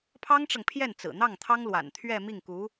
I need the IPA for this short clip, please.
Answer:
pʰɑ˥ŋʈ͡ʂɤ˨ŋpʰjɛ˥˩n t͡sɹ̩˨˩n̪ɑ˥˩ŋt̪ʰɑ˥ŋ lwa̰˨˩nt̪ʰɥɛ˥˧ mi˥˩ŋku˧˥

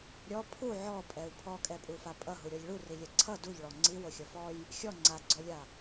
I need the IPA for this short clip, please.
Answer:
ɾʲɔ pʰu ʕɔpʼɛu̯ pʰɔkʼɛpʼufa pʼʌɦuɾʲɔlʲ ɭurilʲɛ ǀʰʌ duʎɭɔ ŋ͡ǀiwoxʲʌ fɔj | xʲɔ ŋ͡ǀaɡ͡ǀɔlʲa

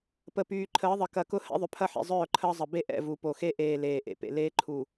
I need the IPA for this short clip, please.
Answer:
pə˨pyː˨ ǃʰəː˨˦ðˤə˨ kɐ˨kʊ˦ hɛ̰˦ðˤʏ˨pʰɐ˦ħḛ˨ zˤœː˦˨ǃʰəː˦zˤə˨ be˦ ʔɛ̰˦˨vu˨ po˨xe˦ʔeː˨ leː˨ʔḛ˨pḛ˨ leː˦ ǃʰu˨

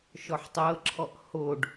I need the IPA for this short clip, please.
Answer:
ʃɔħtˤɤǁʰɔʔ hoɖ

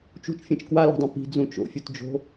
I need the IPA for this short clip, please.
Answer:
t͡ʃṳt͡ʃfʲẽt͡ʃ kwala̤dˤõ pi̤d͡zũ t͡ʃo̰fʲutd͡ʒo̤

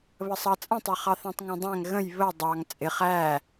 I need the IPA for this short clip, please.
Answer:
βəsˤɑt͡sʼə̃tˤɛ χɑθæ̃tˤŋæ̃dˤæ̃ŋ ɣə̃j βə dˤɑŋ t͡sʼɪχ æ

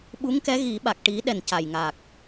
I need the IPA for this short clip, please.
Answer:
ɓu˧˥ŋkɛ˧˥ ɣi˨˩˦ɓa˨˩k̚ʈi˨˩˦ɗɛ˨˩n ca˨˩jŋa˨˩k̚

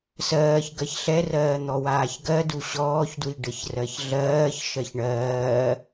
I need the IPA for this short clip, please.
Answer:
sɜːç ɡɜçɬɛrɜː n̪ɔwaːçɡɜdu ɕɔːçdwi ɖəçrɜçɮɜːç ʃɜçɳɜː

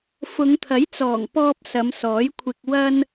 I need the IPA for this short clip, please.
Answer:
fʊ˨˧ŋt̪ʰɐ˨˥jt͡sɔː˨˩ŋ pɔː˧p̚ sɐ˨˧msɔː˨˥jkʷʰɪ˧k̚ wɐ˥n

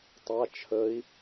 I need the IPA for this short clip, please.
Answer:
tˤa t͡ʃʰəi̯

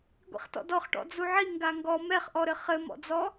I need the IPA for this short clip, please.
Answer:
ɡʷḭχtɔ̰dɔχʈɔ̰ d͡zuʕi ŋɡaŋɡɔ mɛχʔɔɾɘ χɘmɔ̰d͡zɔ

